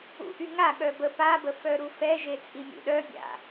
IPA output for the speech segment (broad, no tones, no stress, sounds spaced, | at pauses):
ṵ ʔ y ŋ a ɠ œ b ə p a b ə f œ ɾ u f ɛ ʒ e t͡sʼ i mʲ ṵ ɗ œ bʲ a̰